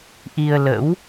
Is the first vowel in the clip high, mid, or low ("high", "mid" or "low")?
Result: high